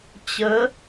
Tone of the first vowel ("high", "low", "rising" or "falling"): rising